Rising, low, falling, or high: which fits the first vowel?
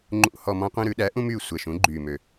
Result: falling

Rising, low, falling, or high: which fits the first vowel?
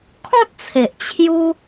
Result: high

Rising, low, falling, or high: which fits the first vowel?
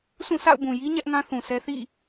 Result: falling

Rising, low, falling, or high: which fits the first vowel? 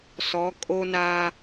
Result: rising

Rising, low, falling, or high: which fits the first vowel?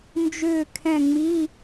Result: falling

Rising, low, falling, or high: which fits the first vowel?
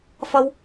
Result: high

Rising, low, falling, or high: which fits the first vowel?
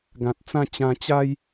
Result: low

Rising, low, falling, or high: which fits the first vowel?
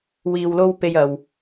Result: low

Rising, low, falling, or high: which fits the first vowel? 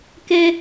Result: high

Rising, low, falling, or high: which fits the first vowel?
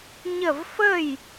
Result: falling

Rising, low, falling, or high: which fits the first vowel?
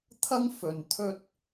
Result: high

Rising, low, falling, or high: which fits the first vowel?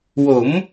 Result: rising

